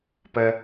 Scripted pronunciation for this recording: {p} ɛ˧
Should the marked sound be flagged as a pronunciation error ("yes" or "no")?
no